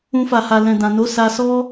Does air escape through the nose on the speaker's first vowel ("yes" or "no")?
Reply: yes